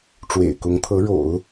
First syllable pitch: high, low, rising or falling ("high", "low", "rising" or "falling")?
low